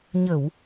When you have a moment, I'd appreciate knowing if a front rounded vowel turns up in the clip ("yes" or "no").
no